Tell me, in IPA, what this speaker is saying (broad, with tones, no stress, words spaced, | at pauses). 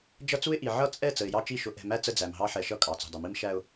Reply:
d͡ʒʌ˦t͡su˦ɪ̯ʔi˨ ʕʌ˦t͡sʼɛ˦˨ t͡sə˨ɪ̯jɑ˦t͡ʃi˦˨ ʃʊ˨ʔɛ̤˨mæ˦ t͡sə˦ d͡zæ˨mɦɑ˦ ħɛ˨ʃʌ˦ kʼɑ˨t͡sṳ˨dˤə˨mi˦m ʃæ˦ʊ̯